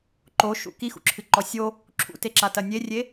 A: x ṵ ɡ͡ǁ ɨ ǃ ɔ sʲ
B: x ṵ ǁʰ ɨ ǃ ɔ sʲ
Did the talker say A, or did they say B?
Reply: B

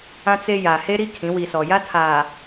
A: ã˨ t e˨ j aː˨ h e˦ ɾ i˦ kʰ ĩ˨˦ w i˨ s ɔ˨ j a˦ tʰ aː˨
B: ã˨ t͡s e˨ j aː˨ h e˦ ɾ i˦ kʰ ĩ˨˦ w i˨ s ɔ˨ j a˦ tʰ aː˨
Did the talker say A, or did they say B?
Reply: B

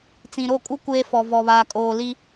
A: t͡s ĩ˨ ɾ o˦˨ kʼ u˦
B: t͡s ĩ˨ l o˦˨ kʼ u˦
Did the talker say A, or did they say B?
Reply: A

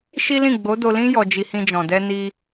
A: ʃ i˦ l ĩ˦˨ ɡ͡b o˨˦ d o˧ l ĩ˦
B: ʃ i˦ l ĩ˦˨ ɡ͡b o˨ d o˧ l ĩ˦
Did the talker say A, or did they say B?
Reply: A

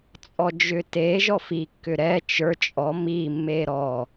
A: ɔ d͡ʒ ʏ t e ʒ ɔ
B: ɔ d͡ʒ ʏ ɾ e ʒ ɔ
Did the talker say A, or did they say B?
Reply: A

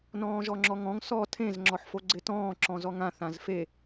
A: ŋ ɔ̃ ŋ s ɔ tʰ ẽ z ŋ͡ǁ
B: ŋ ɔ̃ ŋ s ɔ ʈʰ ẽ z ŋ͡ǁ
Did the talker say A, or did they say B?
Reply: A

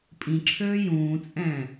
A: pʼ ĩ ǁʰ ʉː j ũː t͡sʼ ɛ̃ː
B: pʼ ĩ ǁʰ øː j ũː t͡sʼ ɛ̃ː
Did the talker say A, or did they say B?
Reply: B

